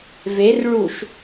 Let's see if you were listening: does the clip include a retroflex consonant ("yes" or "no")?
yes